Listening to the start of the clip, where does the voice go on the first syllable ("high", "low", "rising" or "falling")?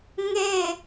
falling